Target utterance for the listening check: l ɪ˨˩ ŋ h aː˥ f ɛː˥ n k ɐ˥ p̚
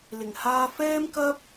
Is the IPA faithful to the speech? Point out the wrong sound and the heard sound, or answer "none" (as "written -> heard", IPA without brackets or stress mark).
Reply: n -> m